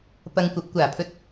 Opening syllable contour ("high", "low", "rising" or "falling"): low